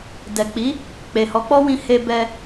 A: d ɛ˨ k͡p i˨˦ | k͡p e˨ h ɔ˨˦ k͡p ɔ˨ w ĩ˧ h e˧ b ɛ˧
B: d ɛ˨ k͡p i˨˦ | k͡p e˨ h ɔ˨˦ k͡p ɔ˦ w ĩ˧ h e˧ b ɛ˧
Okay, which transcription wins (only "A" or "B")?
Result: B